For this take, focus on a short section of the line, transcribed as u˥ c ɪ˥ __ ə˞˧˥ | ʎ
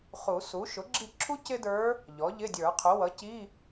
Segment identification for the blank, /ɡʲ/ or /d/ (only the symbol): d